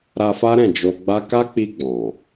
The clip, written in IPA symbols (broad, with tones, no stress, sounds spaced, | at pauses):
ɾ a˧ f a˦ ɾ ɛ̃˦˨ d͡ʒ o˧ ɡ͡b a˦ k a˦ k͡p i˧ ɡ͡b ɔ̃˨